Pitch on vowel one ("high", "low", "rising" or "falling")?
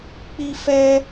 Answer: high